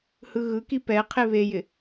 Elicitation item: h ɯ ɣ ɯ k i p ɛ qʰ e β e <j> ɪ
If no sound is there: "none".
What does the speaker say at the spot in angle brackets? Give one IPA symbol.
j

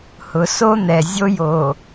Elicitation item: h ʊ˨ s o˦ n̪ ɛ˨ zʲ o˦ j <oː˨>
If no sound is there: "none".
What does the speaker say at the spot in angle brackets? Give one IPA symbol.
o˨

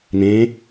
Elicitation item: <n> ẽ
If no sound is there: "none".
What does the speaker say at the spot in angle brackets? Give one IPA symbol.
n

